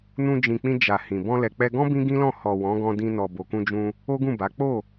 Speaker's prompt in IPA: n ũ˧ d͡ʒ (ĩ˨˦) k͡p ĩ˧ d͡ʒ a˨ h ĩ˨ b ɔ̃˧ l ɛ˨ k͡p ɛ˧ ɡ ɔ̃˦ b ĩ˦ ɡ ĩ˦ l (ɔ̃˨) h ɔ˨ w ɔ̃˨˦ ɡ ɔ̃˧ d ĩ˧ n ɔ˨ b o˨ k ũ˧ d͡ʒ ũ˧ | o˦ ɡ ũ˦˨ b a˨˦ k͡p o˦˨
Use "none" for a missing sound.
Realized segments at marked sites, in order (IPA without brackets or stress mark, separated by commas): ĩ˨, ɔ̃˦˨